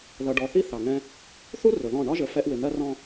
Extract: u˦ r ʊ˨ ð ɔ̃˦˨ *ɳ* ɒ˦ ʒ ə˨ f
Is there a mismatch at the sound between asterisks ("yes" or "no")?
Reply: no